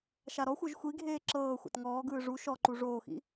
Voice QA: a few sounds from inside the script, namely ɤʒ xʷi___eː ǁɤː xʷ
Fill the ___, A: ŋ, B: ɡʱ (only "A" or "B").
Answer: B